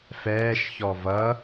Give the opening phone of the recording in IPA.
f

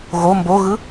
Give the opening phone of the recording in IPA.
ɣ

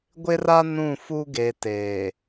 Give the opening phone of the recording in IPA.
ɡʷ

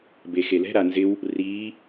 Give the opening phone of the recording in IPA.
b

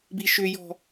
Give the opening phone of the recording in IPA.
b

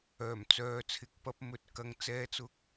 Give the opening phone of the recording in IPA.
œː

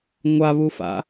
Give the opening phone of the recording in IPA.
ŋʷ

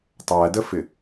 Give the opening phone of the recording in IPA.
tˤ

